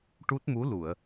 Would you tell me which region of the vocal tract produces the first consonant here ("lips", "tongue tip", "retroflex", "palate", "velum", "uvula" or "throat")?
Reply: retroflex